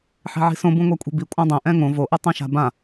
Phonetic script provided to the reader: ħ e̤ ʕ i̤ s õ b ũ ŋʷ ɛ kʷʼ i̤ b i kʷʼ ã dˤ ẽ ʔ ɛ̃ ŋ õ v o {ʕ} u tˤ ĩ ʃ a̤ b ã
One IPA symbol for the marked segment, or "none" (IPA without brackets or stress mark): ʔ